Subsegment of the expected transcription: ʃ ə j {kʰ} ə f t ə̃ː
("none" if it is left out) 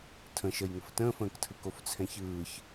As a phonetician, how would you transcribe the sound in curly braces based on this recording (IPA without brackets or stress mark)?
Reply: ŋ